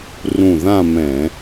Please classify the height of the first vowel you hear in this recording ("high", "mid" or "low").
high